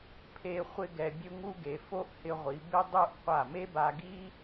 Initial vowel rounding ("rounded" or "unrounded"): unrounded